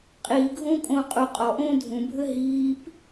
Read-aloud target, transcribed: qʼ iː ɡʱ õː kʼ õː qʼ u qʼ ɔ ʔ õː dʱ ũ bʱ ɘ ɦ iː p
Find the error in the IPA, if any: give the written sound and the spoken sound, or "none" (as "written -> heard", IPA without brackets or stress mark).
none